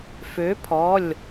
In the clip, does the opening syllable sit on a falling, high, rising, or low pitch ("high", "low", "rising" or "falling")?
rising